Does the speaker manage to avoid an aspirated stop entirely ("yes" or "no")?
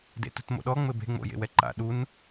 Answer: yes